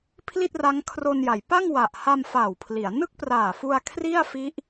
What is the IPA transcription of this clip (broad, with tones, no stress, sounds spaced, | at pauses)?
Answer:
pʰ l i˥˩ t̚ r a˦˥ ŋ kʰ r o˧ n j a˩˦ j p a˥˩ ŋ w a˨˩ ʔ h a˧ m f aː˨˩ w pʰ l i˩˦ a̯ n ɯ˥˩ k̚ p r aː˨˩ f u˧ a̯ kʰ r i˥˩ a̯ f i˦˥ ʔ